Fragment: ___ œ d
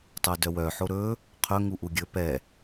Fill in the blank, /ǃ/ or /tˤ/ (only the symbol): tˤ